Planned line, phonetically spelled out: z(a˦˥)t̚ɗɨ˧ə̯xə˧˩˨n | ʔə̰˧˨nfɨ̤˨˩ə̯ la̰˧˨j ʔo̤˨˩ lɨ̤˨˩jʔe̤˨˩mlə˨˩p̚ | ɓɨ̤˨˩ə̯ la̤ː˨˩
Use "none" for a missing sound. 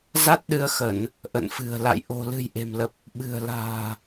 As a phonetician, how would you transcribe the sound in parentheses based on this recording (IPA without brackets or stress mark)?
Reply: a˦˥